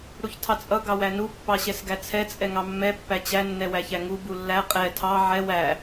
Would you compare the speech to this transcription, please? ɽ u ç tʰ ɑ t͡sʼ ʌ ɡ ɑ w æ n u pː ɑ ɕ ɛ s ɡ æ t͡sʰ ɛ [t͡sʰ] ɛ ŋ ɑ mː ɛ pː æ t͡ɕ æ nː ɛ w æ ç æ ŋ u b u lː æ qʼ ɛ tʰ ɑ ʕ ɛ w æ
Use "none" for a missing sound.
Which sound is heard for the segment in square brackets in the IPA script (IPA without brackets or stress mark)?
t͡sʼ